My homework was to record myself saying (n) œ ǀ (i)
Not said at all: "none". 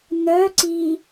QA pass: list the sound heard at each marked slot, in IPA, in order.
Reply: n, i

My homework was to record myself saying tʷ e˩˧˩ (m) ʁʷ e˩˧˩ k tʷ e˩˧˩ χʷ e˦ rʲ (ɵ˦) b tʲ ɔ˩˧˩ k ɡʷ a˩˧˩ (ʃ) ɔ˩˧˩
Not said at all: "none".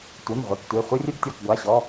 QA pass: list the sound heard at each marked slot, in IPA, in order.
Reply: m, ɵ˦, ɕ

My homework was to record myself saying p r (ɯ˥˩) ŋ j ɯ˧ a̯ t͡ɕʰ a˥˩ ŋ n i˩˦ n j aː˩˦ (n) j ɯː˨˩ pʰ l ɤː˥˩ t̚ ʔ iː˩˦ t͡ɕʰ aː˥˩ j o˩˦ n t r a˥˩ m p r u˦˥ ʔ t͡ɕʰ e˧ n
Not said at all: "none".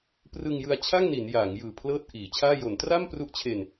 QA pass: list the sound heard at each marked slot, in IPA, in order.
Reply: ɯ˧, ŋ

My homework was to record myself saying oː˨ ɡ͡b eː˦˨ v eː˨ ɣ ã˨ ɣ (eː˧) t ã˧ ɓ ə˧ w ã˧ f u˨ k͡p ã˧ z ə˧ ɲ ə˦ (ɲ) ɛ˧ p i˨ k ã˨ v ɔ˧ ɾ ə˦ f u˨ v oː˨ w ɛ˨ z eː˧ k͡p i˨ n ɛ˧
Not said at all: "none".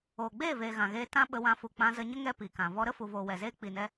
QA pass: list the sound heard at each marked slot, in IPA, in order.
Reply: eː˧, ŋ

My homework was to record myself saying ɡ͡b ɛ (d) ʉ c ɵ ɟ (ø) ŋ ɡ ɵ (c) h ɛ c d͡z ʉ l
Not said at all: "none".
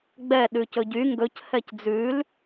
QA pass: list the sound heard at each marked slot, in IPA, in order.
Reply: ɗ, y, c

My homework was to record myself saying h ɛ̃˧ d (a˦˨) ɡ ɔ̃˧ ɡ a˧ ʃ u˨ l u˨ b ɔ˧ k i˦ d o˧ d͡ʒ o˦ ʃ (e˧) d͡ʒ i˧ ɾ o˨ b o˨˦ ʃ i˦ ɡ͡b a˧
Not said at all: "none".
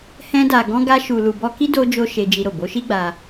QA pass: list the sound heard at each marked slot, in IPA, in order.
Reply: a˨, e˧

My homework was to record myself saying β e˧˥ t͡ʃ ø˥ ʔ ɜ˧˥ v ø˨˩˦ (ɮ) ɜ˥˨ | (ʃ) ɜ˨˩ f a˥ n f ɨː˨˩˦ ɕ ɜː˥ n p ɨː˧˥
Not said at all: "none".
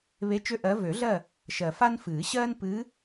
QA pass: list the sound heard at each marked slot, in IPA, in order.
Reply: ɮ, ʃ

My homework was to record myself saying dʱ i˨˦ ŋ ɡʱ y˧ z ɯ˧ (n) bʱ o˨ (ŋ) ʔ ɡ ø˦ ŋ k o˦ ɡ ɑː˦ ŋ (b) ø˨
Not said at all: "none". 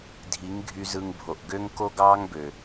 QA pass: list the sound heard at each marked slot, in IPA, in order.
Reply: ŋ, none, b

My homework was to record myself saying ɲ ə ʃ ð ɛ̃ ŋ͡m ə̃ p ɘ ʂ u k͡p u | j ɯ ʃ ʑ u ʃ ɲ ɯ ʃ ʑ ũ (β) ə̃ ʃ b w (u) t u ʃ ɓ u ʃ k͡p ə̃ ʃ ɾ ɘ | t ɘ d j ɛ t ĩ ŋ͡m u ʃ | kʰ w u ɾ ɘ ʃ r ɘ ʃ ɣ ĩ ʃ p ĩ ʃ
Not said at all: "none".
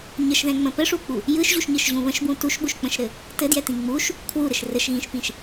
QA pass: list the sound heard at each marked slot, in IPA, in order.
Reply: β, ũ

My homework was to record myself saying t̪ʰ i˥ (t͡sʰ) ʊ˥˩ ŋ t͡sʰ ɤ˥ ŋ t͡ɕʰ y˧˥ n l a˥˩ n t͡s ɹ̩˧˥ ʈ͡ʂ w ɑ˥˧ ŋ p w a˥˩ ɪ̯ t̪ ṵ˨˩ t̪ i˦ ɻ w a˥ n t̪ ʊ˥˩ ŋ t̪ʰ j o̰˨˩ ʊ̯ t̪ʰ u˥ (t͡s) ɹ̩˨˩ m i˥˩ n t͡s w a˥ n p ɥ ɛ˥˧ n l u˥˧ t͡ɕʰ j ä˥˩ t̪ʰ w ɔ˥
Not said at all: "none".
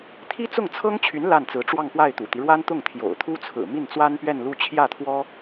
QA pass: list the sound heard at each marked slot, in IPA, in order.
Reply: t͡s, t͡sʰ

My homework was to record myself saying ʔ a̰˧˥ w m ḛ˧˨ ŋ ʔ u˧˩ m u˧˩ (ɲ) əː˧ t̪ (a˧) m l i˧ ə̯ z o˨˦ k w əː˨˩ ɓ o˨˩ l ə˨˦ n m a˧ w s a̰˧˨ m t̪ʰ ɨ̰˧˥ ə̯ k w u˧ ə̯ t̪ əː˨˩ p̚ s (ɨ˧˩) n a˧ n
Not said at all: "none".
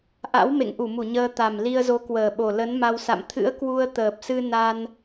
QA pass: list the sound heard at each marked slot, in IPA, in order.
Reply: ɲ, a˨˩, ɨ˧

